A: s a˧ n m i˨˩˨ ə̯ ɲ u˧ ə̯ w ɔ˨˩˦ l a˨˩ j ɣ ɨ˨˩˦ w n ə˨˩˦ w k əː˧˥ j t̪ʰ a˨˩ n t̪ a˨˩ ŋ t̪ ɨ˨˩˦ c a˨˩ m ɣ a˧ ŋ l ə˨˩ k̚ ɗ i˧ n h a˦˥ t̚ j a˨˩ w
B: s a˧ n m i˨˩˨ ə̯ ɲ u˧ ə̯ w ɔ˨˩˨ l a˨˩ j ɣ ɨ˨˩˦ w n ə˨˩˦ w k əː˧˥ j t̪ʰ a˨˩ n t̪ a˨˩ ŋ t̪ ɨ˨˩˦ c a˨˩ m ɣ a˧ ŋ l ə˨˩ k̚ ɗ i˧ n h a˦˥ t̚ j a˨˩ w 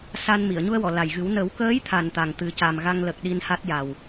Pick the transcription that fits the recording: B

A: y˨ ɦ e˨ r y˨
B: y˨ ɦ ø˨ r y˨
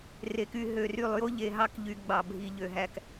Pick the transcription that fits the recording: B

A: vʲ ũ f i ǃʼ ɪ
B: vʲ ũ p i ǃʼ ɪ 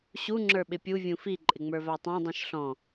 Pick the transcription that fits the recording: A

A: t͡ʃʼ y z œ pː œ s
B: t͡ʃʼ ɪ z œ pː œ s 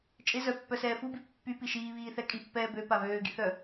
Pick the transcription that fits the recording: B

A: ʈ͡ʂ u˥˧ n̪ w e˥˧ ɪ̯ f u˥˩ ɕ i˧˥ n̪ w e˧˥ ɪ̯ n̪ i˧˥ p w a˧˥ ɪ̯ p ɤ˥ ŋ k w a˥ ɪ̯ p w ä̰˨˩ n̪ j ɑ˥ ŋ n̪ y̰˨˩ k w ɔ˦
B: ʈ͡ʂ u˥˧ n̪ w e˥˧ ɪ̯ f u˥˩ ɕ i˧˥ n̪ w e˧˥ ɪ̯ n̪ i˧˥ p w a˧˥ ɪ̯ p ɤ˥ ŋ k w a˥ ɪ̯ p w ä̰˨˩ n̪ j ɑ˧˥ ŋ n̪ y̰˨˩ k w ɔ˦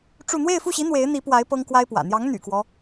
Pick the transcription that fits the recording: B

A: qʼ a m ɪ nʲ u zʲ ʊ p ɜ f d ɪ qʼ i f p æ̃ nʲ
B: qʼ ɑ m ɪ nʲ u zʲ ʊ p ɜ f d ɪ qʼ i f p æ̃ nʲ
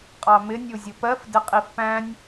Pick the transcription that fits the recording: B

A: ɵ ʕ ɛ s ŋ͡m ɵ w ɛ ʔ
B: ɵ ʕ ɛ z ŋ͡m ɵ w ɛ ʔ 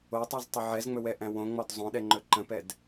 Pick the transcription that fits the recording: B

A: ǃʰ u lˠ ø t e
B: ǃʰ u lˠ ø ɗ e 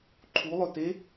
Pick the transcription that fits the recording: A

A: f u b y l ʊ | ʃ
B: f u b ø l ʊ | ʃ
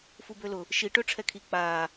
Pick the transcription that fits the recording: B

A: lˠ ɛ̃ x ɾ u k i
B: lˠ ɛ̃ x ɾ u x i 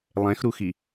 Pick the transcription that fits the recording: B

